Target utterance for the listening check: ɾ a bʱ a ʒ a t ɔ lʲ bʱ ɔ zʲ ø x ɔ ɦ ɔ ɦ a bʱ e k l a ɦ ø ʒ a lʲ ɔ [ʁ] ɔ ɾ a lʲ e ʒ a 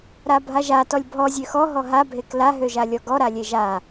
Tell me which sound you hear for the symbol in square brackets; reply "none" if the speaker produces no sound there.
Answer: ɡ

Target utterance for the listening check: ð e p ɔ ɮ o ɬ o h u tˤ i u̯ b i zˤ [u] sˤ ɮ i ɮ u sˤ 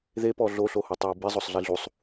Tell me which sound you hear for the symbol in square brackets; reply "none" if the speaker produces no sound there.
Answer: o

